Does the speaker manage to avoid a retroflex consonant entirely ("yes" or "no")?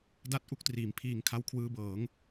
yes